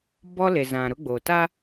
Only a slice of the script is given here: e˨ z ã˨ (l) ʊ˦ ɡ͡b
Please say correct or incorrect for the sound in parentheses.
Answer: incorrect